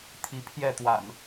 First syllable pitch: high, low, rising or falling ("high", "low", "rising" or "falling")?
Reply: rising